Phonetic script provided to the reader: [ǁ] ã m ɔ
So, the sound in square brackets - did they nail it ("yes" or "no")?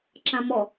yes